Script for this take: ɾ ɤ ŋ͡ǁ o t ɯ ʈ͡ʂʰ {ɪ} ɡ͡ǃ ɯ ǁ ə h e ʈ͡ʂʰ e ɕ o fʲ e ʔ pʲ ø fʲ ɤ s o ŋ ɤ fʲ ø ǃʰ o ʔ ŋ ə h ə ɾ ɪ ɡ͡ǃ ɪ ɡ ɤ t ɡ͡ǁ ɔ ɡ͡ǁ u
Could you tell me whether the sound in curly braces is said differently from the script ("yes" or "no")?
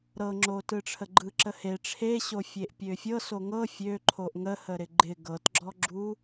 yes